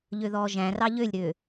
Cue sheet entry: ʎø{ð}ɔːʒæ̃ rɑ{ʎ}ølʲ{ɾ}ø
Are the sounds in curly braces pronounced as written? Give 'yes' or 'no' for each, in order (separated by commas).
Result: yes, yes, yes